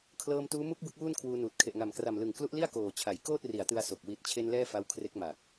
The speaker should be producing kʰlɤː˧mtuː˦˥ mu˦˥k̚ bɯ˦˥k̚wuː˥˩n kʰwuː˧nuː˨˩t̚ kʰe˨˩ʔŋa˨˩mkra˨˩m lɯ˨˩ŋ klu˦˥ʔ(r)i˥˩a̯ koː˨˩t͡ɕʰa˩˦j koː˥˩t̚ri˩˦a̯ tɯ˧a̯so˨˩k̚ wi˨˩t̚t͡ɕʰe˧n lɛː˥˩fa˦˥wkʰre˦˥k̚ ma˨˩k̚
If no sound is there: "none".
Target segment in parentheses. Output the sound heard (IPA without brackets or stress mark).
l